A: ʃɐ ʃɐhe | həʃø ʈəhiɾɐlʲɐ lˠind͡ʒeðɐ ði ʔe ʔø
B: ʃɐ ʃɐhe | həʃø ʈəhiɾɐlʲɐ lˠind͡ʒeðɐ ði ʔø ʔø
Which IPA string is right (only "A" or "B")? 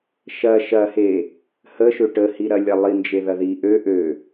B